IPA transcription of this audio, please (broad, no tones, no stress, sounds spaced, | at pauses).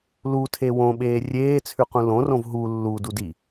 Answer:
l u tʰ e w õ ɓ eː rʲ eː t͡sʰ ʉ q ũ l õ r õ v ɦ u lː u d u d i